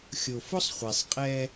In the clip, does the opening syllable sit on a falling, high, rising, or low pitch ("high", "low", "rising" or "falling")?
low